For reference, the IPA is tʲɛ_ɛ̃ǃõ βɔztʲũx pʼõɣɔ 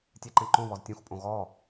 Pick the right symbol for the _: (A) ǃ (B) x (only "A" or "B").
A